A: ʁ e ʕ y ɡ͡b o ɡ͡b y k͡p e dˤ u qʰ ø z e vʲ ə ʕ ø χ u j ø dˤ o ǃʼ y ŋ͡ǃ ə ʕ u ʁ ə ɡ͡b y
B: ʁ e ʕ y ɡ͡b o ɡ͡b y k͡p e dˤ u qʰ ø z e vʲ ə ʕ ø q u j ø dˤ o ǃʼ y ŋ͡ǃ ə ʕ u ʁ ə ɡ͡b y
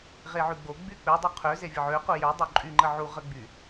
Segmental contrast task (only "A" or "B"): B